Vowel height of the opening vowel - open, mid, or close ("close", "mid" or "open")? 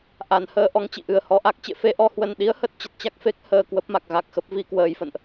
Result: open